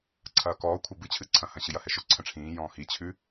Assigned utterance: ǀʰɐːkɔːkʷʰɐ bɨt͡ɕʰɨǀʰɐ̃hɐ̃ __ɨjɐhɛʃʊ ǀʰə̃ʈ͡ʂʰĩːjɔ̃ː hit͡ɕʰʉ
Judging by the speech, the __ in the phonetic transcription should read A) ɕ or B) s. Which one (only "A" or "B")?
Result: A